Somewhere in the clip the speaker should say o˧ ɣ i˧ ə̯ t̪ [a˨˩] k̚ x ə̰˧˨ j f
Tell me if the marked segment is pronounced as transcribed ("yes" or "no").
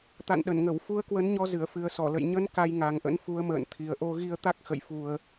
no